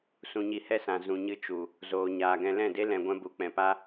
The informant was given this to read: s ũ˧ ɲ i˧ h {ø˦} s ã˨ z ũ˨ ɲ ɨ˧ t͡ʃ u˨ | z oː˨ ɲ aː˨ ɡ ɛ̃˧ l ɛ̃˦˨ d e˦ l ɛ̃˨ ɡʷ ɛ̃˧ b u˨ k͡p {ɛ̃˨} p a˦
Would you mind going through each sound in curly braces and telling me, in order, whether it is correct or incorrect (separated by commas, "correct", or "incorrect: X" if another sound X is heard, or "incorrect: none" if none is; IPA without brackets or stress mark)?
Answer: incorrect: ɛ˦, correct